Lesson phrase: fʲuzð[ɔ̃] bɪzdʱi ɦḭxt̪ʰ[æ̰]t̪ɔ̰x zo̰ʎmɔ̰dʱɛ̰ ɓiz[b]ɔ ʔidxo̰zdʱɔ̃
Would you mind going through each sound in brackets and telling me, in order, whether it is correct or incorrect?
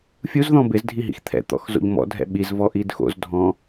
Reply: correct, incorrect: ɛ̰, incorrect: v

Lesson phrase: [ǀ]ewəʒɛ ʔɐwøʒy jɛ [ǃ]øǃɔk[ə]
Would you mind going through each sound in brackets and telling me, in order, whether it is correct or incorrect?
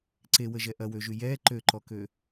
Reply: correct, correct, incorrect: ø

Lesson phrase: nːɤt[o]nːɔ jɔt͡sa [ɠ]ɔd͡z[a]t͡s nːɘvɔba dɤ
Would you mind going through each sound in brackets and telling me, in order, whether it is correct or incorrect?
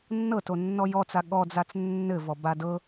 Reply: correct, correct, correct

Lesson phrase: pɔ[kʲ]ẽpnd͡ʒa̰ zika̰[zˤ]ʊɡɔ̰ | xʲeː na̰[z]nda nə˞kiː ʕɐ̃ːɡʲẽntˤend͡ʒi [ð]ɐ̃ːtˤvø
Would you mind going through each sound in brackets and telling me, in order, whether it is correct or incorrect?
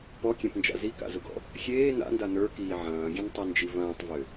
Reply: correct, incorrect: z, incorrect: none, incorrect: v

